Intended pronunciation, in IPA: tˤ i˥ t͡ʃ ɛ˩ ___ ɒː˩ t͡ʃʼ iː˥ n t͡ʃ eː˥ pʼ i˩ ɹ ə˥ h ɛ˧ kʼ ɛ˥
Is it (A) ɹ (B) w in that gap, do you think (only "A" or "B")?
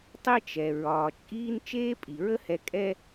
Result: A